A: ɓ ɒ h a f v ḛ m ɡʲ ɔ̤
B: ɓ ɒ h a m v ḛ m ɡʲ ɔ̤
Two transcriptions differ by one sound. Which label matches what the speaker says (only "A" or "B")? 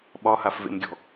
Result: A